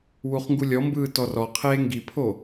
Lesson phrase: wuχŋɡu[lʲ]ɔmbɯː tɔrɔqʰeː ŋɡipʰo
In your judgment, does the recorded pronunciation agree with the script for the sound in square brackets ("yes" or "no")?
yes